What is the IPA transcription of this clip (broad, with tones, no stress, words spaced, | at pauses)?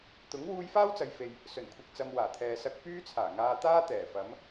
t̪ʊ˨˥ŋ wuː˧jfaː˥wt͡sɐ˨jfe˨j | sɵ˨˩nkʷʰɪ˨k̚ t͡sɐ˨mwaː˨˩t̪ʰɛː˨sɐ˧k̚ pyː˥t͡sʰaː˨˩ŋaː˧ t̪aː˥t̪ɛː˨˩ fɐ˨˧m